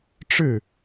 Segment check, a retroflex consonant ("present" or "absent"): present